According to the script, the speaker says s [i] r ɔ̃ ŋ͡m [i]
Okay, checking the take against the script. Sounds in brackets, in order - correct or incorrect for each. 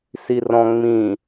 correct, incorrect: ĩ

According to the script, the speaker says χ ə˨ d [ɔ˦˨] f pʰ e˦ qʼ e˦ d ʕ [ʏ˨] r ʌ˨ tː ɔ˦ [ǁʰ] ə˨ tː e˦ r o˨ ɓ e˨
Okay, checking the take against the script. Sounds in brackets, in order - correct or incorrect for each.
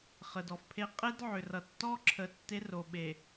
incorrect: ɔ˨, correct, correct

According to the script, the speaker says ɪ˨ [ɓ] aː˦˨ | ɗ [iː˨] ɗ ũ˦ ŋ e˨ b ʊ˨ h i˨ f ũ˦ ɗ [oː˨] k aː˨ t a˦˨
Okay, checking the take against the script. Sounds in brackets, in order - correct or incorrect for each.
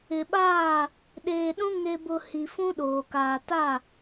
correct, incorrect: eː˨, correct

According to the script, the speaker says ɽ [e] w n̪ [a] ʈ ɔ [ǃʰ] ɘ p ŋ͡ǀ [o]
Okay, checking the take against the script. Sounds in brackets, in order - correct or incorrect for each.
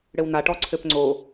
incorrect: ɘ, correct, incorrect: ǀʰ, correct

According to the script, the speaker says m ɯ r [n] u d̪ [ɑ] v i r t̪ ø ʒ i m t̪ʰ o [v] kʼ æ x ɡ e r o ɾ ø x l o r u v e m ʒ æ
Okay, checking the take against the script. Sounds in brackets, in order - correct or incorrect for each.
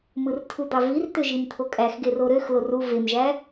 incorrect: tʰ, correct, incorrect: none

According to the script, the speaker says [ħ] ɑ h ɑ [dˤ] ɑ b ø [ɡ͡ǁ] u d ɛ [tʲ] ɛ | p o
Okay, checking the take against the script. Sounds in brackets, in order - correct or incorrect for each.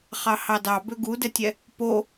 incorrect: χ, incorrect: d, incorrect: ɡ, correct

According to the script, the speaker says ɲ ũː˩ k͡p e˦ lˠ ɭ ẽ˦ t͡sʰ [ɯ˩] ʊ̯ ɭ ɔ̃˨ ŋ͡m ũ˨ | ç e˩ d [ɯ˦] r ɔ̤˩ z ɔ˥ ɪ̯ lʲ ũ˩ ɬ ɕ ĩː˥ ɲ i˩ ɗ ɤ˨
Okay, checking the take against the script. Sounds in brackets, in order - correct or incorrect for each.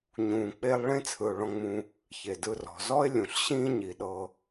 correct, incorrect: ɯ˨

